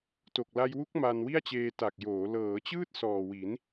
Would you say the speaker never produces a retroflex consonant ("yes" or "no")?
yes